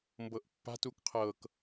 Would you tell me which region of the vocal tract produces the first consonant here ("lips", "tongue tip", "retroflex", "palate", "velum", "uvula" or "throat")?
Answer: lips